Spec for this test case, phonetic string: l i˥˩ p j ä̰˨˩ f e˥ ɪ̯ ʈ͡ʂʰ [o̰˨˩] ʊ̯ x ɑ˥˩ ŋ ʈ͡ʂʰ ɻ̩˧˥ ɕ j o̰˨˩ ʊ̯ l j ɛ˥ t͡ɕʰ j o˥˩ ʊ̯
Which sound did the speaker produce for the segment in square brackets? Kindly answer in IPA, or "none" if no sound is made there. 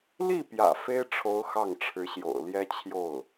o˧˥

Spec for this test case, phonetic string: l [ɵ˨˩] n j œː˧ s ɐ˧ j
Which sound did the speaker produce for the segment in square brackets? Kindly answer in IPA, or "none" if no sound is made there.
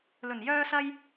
ɵ˨˩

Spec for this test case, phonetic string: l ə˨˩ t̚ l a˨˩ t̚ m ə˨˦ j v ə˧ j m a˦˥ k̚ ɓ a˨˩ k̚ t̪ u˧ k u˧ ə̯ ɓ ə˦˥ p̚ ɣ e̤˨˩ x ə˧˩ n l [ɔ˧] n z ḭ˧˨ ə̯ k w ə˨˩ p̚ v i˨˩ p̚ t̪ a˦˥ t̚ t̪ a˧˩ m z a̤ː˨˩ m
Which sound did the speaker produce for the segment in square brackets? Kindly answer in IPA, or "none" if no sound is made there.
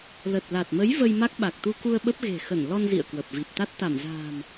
ɔ˧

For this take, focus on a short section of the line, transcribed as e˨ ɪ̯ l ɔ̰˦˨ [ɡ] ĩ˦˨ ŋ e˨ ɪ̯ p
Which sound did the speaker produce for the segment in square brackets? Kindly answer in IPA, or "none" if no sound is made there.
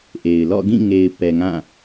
ɡ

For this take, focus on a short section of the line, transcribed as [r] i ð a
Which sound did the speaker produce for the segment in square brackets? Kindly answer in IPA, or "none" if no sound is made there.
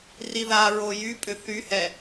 r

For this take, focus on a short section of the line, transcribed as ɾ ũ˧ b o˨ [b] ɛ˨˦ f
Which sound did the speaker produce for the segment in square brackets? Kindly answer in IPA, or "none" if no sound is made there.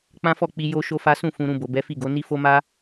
b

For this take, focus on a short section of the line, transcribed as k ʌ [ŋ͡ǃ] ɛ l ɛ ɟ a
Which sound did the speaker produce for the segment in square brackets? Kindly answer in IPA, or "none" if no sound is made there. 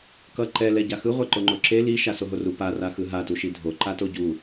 ǃ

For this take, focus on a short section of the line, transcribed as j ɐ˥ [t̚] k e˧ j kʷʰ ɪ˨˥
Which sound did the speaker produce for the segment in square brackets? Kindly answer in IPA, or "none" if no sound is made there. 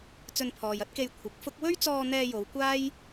t̚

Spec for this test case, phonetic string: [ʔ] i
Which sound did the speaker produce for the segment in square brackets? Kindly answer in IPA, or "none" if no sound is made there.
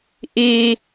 ʔ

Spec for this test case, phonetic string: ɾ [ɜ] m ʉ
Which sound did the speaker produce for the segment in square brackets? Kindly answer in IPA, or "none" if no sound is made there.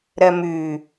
ɜ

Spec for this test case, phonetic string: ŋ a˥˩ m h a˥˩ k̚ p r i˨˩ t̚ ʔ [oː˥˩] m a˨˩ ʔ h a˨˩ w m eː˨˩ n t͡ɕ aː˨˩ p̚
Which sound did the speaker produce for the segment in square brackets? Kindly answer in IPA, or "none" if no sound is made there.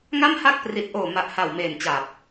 oː˨˩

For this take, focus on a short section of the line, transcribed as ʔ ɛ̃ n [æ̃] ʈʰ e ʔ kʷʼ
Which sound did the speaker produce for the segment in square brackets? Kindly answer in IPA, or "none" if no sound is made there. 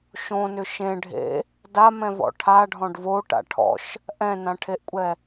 ã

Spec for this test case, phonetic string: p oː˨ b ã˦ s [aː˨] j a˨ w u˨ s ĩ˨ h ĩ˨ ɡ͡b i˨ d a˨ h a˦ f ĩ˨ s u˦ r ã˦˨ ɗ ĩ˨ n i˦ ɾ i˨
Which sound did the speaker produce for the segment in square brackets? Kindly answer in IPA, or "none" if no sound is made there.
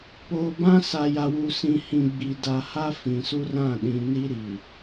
a˨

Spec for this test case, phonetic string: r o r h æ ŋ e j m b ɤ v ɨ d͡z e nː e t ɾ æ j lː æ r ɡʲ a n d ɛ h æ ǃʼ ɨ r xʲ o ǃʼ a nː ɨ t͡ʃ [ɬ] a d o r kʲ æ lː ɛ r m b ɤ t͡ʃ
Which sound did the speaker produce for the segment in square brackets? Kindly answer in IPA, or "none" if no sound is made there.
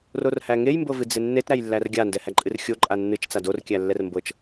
t͡s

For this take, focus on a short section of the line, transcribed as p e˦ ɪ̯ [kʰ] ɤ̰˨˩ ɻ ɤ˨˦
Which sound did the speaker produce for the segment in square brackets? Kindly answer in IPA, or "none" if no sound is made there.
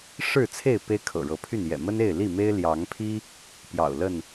kʰ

